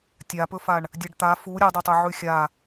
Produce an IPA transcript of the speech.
tʲ a p ɵ f a ɳ | dʲ ɐ ɖ t̪ a f u ɾʲ ɐ dˤ ɵ tˤ ɵ ʕ ʉ xʲ a

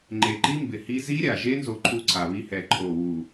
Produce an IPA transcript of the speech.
ŋ͡ǃ e˨˩ ǃ i˦˥ m b ɪ˨˩ h i˦˥ z i˦˥ ɾʲ a˨˩ ʒ e˦˥ n z o˦˥ ǃʰ u˦˥ ǀʰ a˨˩ β i˦˥ h ɛ˨˩ ǃʰ o˨˩ w u˨˩

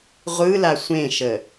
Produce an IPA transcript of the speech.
ʁʷ ɯ l a sʷ ẽ ʃ ə

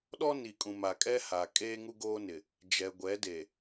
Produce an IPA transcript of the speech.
ɗ ɔ˦ n i˨ kʼ ũ˨ m a˨ kʼ ɛ˦ h a˨ kʼ eː˦ ŋ u˦ ɡ oː˦ n ɪ˨ | d͡ʒ ɛ˨ ɡʷ ɛ˨˦ d e˨

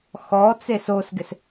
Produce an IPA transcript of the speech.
x ɔ t͡s e s o s ɡ ɪ s

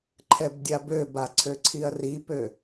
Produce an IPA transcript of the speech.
ǃʰ ɛ b dʲ a b ø b a ǀʰ ø ǀʰ i ɐ̯ r i p ø

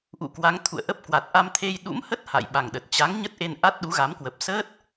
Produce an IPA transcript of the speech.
ʔ ṵ˧˨ k w a˨˦ ŋ t̪ʰ ṵ˧˨ ə̯ ʔ ə˦˥ p̚ k w a˨˩ t̚ ʔ a˧ m t̪ʰ e˧ j ɗ ṵ˧˥ m h ə˦˥ t̚ h a̰˧˨ j ɓ a˨˩ ŋ ɗ ə˨˩ t̚ t͡ɕ a˨˦ ŋ ɲ ə˦˥ t̚ ʔ e˧ n ʔ a˦˥ t̚ ɗ u˨˦ ɣ a˨˦ m k w ə˨˩ p̚ s əː˦˥ t̚

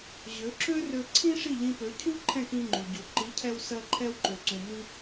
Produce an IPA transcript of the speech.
ʑ ø˩˥ ǁ ø˥ r ø˧ ǀʰ ĩ˥ ʂ i˥˩ ʎ ĩ˧ p ø˩˥ cʰ u˥ ǃʰ ɛ̃˥˩ k ĩ˧ ŋ͡ǃ u˩ ɟ u˩ ǃ i˩˥ cʰ ɛ˧ w s ɜ˧ ǃʰ ɛ˧ w ǃ ø˩ ǀ ũ˩ m ĩ˧

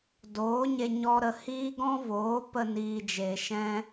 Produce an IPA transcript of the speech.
d oː˨˦ ɲ e˧ ɲ ɔ˦ ɾ ə˧ h iː˦ ɡ ɔ̃˦ v oː˨˦ p ə˧ n iː˨ d͡ʒ e˨ ʃ ɛ̃˧

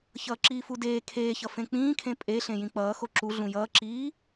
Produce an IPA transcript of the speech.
ç ʌː ǁ iː f u d eː kʰ eː ç ʌ f ẽ k͡p ĩː kʰ ẽ pʼ e ɬ ẽ j ĩ k͡p ʌː x o ǁ u ɮ ũ j ʌː ǁ iː

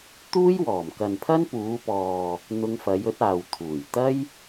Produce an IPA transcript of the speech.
t̪ uː˥ j w ɔː˨˩ m k ɐ˨ n pʰ ɐ˥ n p uː˨˧ p ɔː˨ | n̪ ʊ˧ ŋ f ɐ˨˧ j ɵ˨˥ t̚ aː˨ w t̪ʰ uː˨˩ j t̪ ɐ˥ j

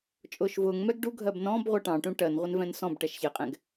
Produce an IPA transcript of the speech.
t͡ʃʼ ʊː ʃ v ʊː ŋ m ɛ ɡ ɖ u ɡʱ ɜ b n ɔ̃ b ʁʷ ɜ ʈ ɑ̃ ʈ ũ ʈ ɜ n ʁʷ ɛ n v ɛ̃ n s ɔ̃ b ʈ ɛ ʃ ç ɛ qʼ ɛ̃ ɡ

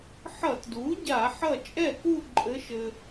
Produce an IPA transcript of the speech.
ħ ʌ˧˩˧ t d u˩˥ ɟ a˧˩˧ ħ ʌ˥˩ t͡ʃʼ ɛ˥˩ k u˥˧ ǃʼ ɘ˧˥ ʃ ɘ˧

